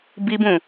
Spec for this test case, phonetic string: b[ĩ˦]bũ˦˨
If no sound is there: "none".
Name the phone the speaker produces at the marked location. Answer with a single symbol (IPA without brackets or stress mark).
i˦